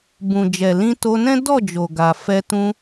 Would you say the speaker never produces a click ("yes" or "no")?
yes